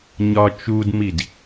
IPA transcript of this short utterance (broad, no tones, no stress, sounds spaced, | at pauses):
ɲ ɒ t͡ʃ u d m i d